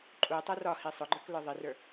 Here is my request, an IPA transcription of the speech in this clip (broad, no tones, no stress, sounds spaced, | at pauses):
ǃʼ u tˤ ɛ r ɒ h i sˤ ʊ ɡ͡ǃ ə˞ k l ə˞ ðˤ i r ə˞